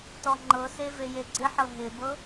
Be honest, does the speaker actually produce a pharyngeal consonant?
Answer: yes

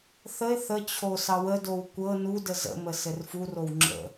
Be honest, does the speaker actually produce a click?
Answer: yes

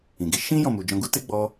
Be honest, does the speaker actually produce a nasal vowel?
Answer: yes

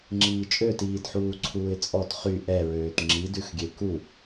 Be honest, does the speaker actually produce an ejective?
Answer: yes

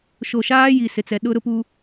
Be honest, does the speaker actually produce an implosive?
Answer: yes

